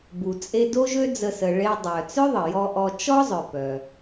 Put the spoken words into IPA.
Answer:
bu˩t͡sʼe˧ do˥ʒø˥d͡zə˧ sə˩ ɭe˧dˤœ˩ t͡sœ˥ðˤə˩jɔ˧ ʔɔ˧ t͡ʃɔ˥zˤœ˩ pœ˩

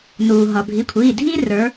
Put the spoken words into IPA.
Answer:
nuː˩ɦʌ˩ bʱi˩˧˩kʷʰiː˩˧˩dʱiː˥ rə˞˨˦

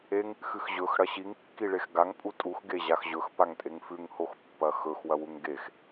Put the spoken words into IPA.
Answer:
eŋ | xɨxʑɵx ɽɐɕiŋ kːiɭexɡaŋ pʼutʼux ɡeʑaxʑɵx paŋtʼeŋfʉŋ hoxpːɐxɵx wɐwuŋɡex

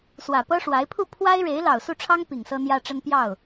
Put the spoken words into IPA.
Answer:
swä˨˩pɤ˥ʂwa˧˥ɪ̯ pʰu˥˩pʰwa˥ɪ̯ɻe˧˥ɪ̯ lɑ˨˩ʊ̯su˥˩ʈ͡ʂʰɑ˥ŋ pi˨˩ŋsɤ˥n̪jä˥ʈ͡ʂə˥n pjɑ˥˩ʊ̯

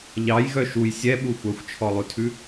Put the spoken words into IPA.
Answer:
ʎɑjɣœ ʃuj sʲɛɓu xʷœxʷt͡ʃʰɔlˠʉtʰʉ

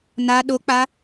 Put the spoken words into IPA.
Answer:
na ɗok͡pa

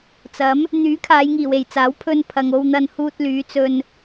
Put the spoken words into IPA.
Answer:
t͡sɐ˨˥m | n̪yː˨˥kʰaː˨˧jŋiː˨˩w e˨jt͡saː˨˥w pʰɵ˧npʰɐ˨ŋ o˧wn̪ɐ˧nhuː˧t̚ lyː˨˧t͡sɵ˧n

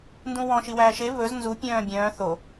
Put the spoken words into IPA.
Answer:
ndũwɔ̃ ʃiwæːʃe βɵz nzu pʲœ̃ːbʲœ̃ː θo

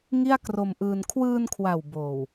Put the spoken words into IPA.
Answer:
ŋi˥˩a̯kro˧mʔɯː˧n kʰwɯː˧nkʰwa˨˩w boː˨˩w

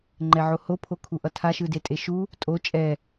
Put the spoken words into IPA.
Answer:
ŋ͡ǃɛʕoho pʰokʰuʔʌtʰa ʃɯdetʼeʃu | tʼo t͡ʃʼɛ

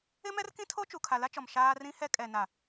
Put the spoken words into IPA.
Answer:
ɪ˦mɛ˦rkĩ˦tʰo˦ t͡ʃu˨kʰa˨la˦t͡ʃɔ˨m ʃaː˦ rĩ˦hɛ˦ kʼɛ˨ na˨

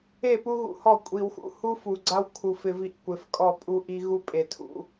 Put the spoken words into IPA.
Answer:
e˦˨pu˦ɣṵ˨hɔ˦˨ kʷʼi˨wxṵ˦ hu˦fu˨ɡ͡ǀa˦w kʰu˨f ɪ˦vi˦ʔkʷɪ˨f kʼɔ˦˨pʼu˦ʔi˦ ɣu˦pʼe˨tʰṵ˨

